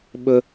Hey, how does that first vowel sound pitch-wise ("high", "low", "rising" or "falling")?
high